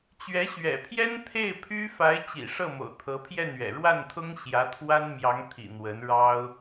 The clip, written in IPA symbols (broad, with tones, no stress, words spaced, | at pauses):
t͡ɕɥɛ˧˥ɕɥɛ̰˨˩pʰjɛ˥n t̪ʰe˥˩ɪ̯pʰy˥ fa˧˥ɪ̯t͡ɕḭ˨˩ʂɤ˥˩mo̰˨˩ʊ̯ t̪ʰɤ˧˥pʰjɛ˥˩nɥɛ̰˨˩ ɻwa˥˩nt̪ʰʊ˥ŋɕjä˧˥ t̪ʰwa˥nmjɑ˧˥ŋt̪ʰḭ˨˩ n̪wə˧˥nɻɑ˥ʊ̯